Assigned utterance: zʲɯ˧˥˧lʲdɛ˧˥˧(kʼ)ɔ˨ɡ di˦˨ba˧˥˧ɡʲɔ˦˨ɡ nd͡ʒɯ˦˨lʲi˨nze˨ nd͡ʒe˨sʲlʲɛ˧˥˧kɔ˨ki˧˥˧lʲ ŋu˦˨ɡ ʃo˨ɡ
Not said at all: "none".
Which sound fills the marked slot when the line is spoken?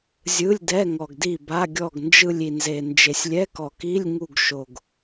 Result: ŋ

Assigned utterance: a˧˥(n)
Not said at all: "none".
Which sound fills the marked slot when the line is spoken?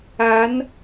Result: n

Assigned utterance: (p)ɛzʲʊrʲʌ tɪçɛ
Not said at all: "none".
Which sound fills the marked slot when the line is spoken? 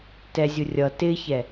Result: t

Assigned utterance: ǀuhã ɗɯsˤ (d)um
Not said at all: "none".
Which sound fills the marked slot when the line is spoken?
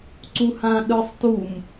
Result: t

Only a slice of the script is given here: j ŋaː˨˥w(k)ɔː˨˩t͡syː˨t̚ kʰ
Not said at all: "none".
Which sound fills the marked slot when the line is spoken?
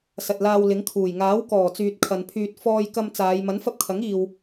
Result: k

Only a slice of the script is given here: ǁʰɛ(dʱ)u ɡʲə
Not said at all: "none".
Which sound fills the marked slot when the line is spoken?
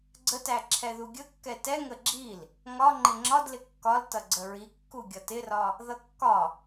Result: ð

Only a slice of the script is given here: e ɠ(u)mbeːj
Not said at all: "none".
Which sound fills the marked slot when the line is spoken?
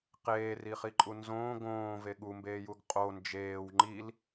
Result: u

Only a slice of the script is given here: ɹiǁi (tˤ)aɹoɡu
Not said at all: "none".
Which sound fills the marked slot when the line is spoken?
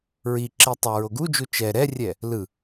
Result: tˤ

